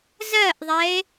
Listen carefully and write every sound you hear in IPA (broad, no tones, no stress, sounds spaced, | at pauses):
z ɜ ʔ ðˤ ɛ e̯